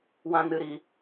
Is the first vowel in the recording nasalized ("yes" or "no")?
yes